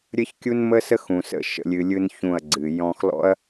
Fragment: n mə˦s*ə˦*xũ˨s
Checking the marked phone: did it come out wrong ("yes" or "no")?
no